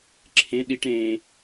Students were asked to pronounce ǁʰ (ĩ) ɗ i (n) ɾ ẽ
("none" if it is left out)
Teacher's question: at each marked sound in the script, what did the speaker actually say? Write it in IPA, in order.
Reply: ẽ, ʈ

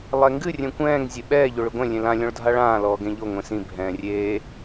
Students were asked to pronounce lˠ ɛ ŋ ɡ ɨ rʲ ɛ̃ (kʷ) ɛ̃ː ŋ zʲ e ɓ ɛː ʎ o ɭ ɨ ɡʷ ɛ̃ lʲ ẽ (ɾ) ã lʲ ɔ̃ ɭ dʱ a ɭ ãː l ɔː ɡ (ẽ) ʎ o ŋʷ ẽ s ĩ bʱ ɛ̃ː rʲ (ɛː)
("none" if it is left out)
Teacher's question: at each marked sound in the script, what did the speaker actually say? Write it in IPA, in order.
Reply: kʷ, l, ẽ, eː

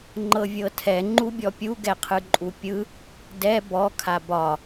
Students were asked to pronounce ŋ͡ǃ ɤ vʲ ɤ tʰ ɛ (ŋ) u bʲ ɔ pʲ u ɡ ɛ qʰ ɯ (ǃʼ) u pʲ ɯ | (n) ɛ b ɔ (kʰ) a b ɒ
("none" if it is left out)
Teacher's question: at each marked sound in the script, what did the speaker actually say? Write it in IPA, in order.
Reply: ŋ͡ǃ, ǃʼ, d, kʰ

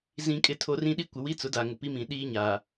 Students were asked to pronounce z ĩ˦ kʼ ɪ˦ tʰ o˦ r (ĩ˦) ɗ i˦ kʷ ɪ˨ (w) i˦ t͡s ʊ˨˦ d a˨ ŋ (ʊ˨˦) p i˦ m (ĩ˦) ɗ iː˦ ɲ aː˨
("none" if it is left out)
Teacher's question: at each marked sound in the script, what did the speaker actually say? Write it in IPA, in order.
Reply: ĩ˦, w, ʊ˨, ĩ˨

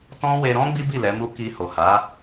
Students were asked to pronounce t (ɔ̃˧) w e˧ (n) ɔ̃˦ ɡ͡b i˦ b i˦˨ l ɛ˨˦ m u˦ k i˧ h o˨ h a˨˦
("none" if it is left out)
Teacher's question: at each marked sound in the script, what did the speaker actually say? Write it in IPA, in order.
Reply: ɔ̃˦, ɾ

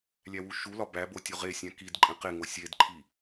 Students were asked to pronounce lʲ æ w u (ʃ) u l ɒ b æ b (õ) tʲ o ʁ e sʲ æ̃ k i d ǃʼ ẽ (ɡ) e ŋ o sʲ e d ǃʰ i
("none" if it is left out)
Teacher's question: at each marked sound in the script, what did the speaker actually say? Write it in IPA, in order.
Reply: ʃ, o, q

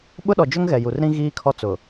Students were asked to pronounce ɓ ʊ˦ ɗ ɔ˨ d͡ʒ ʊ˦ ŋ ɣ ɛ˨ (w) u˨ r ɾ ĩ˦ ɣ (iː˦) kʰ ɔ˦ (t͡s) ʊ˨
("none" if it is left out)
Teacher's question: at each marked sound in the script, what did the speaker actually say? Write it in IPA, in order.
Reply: j, iː˦, t͡s

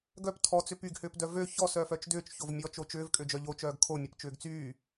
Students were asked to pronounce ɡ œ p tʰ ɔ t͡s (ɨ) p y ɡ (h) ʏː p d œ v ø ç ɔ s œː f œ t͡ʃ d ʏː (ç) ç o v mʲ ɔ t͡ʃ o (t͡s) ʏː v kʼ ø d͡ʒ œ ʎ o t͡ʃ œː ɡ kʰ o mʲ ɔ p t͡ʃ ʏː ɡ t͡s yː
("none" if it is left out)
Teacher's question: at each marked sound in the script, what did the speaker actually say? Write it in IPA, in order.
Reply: ʏ, h, t͡ʃ, t͡ʃ

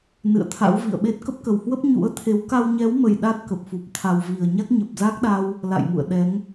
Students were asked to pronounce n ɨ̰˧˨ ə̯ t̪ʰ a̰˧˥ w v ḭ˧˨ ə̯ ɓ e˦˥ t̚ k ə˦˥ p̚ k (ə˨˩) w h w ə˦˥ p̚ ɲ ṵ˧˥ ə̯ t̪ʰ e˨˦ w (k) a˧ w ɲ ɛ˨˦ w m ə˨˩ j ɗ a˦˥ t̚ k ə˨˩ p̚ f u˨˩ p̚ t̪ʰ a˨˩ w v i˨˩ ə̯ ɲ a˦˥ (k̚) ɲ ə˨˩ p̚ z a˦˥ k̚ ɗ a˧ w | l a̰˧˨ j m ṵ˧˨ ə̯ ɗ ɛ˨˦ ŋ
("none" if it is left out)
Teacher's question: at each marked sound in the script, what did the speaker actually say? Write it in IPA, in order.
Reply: ə˨˩, k, k̚

